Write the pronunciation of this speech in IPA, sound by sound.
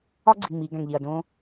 ɒ˦ ɡ͡ǀ i˨ ŋ͡m i˨˦ ɡ æ̃˨ ŋ ʎ i˨ ɐ̯ d õ˦

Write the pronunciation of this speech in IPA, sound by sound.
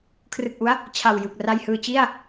kʰ r ɯ˨˩ k̚ ʔ u˦˥ a̯ | t͡ɕʰ a˨˩ w j ɯ˨˩ k̚ r a˧ j h ɯː˧ t͡ɕ i˥˩ a̯

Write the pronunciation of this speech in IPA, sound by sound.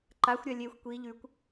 ǃ a xʷ ɾʲ a lʲ e xʷ kʷ i ʎ ʉ kʷ

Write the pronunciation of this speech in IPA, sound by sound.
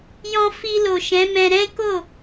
j ɔ̃˧ f i˧ l o˨ ʃ ɛ̃˨˦ m ɛ̃˧ ɾ ɛ̃˦ k o˦˨

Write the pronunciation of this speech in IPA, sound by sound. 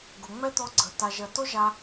ɡ ʊ˨ ŋ͡m ɛ˦ t̪ ɔ˧ ɡ͡ǀ ə˨ t a˨ ʒ ɜ˨ t o˦ ʒ a˧

